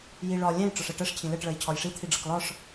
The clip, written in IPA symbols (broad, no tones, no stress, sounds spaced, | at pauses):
j i ɭ ɒ lʲ ɛ̃ j ʈ͡ʂ ɒ ʂ ɛ ʈ ɜ ʂ cʰ ĩ l ɛ ʈ ɭ ɜ j cʰ ɒ j ʂ i t̪ʰ i ɖ͡ʐ ʌ k l ɒ ʂ